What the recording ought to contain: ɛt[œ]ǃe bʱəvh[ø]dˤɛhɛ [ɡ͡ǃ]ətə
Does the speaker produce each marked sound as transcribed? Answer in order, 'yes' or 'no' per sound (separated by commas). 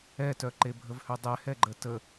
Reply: yes, yes, yes